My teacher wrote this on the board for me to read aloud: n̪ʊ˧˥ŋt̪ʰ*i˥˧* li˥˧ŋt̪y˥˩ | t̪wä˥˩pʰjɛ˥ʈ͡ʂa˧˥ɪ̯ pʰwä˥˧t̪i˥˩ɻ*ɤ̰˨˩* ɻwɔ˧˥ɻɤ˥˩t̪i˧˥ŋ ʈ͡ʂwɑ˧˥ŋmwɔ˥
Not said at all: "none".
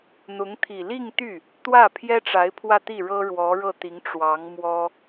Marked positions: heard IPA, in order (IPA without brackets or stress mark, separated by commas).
i˨˩, ɤ˥